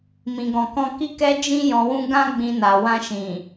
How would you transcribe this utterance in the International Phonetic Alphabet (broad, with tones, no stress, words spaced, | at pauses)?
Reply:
mĩ˨ɡɔ̃˨kɔ̃˧ ki˦kɛ˦ d͡ʒĩ˦ jɔ̃˧wũ˦ ɡã˦ɡ͡bĩ˧na˨ wã˧ʃĩ˨